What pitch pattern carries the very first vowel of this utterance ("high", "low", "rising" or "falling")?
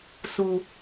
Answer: low